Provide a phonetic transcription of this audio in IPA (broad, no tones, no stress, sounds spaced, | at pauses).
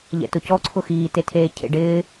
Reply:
ʎ ɛ̰ t ʊ c ɔ ǀʰ ʊ x iː t e tʰ eː cʰ ḛ ɖ ɪː